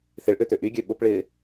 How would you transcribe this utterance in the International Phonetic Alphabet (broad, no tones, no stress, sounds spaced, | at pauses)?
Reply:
θ ɪ ɭ ʔ ø t̪ ø ʔ y ɡʲ ø ɓ ʊ p ɭ ɪː